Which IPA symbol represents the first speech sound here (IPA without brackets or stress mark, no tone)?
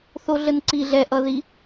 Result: θ